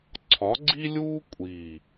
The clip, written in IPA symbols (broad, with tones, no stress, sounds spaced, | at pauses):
ǀʰ ɒ˨˥ ɡ͡ǀ i˥ lʲ uː˥ kʷʼ i˨˩